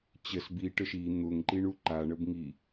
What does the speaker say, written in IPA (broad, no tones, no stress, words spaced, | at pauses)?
t͡ɕəs biʈəʃ i n̪ʊŋǃiɳu ǃaɳəbŋi